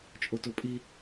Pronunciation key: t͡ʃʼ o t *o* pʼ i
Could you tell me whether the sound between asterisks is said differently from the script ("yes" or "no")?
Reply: no